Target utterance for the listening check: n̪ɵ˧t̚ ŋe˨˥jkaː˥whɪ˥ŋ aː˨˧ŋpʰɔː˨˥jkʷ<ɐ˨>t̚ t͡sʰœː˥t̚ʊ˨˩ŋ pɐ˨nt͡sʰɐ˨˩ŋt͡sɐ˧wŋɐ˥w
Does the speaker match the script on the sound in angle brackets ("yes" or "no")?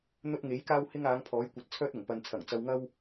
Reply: yes